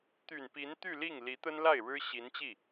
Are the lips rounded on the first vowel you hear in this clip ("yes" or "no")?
yes